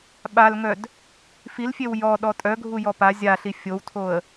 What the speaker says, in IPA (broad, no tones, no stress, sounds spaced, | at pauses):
ɓ a l ŋ œ d | f i l fʲ e w j ɔ ɗ ɔ tʼ œ ɡʱ u j ɔ p a zʲ a ɬ i fʲ o w tʰ o ə̯